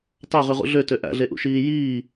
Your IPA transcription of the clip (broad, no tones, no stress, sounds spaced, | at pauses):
t ɑ ʁ y ʁ ṵ ɮ ø t ø ʔ æ̰ ɮ e ʔ ṵ ʃ iː j iː